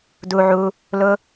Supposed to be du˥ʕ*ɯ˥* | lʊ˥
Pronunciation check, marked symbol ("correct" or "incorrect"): incorrect